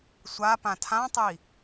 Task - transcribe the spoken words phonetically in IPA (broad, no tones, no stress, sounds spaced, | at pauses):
sʷ a p ã tʰ ã tˤ i